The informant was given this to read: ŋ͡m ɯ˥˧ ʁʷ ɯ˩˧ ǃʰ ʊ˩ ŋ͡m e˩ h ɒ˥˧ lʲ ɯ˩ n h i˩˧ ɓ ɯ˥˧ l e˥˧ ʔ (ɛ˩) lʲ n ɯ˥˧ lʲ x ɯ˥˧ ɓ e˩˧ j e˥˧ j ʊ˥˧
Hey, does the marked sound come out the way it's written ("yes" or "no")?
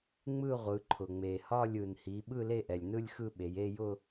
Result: yes